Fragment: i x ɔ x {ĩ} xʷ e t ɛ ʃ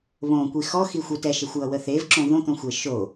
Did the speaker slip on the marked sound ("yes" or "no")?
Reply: yes